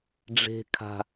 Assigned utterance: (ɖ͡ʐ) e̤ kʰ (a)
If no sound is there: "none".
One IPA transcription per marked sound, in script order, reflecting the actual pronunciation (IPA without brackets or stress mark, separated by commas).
ɖ͡ʐ, a̤